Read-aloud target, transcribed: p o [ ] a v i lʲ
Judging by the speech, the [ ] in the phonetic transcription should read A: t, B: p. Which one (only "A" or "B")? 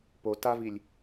A